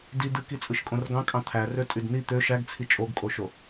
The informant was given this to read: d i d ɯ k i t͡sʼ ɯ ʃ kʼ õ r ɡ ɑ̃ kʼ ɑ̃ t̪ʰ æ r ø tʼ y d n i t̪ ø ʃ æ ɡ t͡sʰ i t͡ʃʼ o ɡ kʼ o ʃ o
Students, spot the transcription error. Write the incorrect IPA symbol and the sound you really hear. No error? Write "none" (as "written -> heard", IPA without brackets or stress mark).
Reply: none